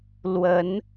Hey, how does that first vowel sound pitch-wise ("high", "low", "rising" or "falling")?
rising